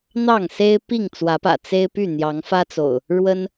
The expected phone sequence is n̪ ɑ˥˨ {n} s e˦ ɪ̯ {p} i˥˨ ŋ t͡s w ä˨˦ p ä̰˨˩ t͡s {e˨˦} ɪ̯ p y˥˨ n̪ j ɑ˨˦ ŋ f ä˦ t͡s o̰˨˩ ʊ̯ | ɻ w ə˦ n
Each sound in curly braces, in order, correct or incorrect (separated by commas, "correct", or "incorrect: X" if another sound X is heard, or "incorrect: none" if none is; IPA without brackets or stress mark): incorrect: ŋ, correct, incorrect: e˦